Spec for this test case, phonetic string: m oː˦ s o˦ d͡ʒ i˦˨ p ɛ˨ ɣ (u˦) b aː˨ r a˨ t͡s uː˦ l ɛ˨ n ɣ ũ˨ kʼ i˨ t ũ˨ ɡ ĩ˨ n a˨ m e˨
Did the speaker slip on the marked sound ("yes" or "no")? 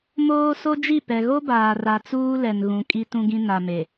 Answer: yes